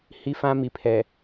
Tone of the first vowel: high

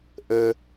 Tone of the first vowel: high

